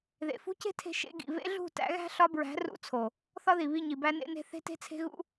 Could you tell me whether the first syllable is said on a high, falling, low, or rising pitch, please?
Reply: low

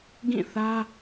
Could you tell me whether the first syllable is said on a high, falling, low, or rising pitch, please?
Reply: falling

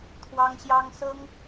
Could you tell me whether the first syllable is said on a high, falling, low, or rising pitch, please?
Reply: high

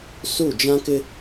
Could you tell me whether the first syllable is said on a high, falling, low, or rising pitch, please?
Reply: falling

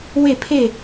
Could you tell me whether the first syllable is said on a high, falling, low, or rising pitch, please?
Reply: falling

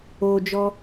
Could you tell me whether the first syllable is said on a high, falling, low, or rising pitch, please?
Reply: high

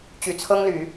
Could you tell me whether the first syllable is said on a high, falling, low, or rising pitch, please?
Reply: low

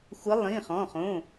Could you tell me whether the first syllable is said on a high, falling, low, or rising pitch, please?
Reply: rising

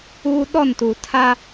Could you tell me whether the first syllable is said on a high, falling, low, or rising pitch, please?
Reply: high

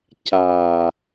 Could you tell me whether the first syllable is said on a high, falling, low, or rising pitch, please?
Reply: low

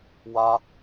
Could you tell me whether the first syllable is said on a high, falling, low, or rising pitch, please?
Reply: high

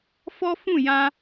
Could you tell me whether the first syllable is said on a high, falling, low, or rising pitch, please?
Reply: high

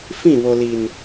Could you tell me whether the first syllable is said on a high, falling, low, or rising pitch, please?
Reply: falling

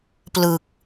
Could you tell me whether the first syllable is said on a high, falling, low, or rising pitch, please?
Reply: low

